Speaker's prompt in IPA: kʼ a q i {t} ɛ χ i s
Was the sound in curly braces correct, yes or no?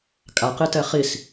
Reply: yes